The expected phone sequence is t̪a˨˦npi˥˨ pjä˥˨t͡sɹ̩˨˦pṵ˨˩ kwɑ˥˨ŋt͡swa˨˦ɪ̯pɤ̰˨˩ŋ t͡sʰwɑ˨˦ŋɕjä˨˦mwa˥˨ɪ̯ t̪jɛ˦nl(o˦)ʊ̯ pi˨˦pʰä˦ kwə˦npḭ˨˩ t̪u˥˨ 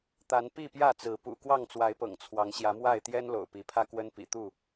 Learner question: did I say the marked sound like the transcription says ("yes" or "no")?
no